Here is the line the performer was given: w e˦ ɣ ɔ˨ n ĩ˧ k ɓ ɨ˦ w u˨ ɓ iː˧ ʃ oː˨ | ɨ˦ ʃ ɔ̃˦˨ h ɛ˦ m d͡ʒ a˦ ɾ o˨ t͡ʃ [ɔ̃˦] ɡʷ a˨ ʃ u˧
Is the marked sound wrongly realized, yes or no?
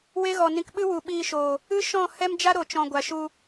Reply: yes